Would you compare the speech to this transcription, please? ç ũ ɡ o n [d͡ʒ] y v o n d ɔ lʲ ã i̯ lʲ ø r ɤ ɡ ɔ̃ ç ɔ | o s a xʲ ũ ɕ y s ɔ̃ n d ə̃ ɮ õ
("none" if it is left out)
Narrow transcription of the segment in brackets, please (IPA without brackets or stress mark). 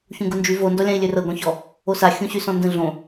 d͡ʒ